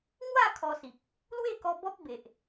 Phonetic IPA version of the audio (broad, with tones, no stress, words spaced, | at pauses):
ŋwa˥˧ kʰɔ˧si˨k̚ | lwe˥˧kɔ˧ bɔ˦p̚be˨ʔ